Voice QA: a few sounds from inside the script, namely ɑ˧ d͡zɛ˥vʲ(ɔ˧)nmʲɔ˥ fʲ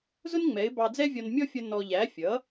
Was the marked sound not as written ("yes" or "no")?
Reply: no